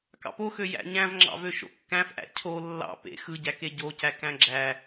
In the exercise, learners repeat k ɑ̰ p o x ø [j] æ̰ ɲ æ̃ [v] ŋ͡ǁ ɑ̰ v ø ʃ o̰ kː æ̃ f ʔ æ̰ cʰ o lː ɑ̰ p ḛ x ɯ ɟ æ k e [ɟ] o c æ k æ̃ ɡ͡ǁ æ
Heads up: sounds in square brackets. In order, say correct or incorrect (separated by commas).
correct, correct, correct